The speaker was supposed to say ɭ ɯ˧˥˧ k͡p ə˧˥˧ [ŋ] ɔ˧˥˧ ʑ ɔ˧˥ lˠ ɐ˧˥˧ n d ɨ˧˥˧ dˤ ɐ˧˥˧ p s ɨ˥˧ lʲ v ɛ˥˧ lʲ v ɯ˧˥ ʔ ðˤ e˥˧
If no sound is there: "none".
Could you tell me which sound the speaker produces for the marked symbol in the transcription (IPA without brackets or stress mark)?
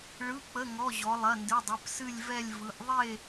ŋ